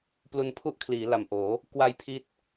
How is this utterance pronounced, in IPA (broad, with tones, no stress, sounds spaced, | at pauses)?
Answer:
p l u˧ n pʰ u˥˩ ʔ kʰ l iː˩˦ l a˨˩ m ʔ oː˩˦ | k w a˧ j pʰ i˦˥ t̚